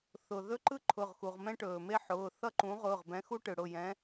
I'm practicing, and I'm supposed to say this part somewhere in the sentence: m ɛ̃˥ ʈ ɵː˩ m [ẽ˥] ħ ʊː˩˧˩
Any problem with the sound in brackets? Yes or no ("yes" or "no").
yes